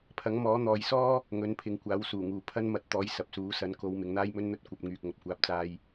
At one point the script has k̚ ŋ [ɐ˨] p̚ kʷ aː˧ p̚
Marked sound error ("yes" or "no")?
no